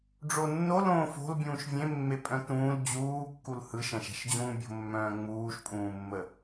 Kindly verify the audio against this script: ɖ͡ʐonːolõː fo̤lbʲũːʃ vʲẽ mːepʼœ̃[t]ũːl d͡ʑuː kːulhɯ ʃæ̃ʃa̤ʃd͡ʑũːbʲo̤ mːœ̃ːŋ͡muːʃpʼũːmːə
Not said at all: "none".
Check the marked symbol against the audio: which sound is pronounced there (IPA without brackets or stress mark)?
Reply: t